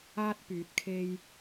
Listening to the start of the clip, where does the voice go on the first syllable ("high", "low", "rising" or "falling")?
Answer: high